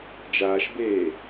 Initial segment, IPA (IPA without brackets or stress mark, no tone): d͡ʒ